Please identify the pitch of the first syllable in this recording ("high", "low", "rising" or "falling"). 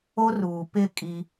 high